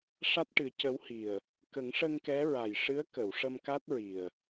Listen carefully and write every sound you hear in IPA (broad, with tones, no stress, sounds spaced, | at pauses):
ʂ a˦˥ t̚ ʈ ɨ˨˩˦ c ə˧˥ w h i˨˩ ə̯ | k ə˨˩˦ ŋ ʂ ə˧ ŋ k ɛ˧˥ ɹ a˨˩ j ʂ ɨ˧˥ ə̯ k ə˨˩˨ w ʂ ə˧ m k a˦˥ t̚ ɹ i˨˩ ə̯